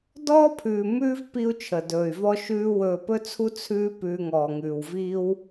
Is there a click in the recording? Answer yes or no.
no